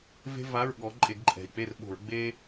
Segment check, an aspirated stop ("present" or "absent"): absent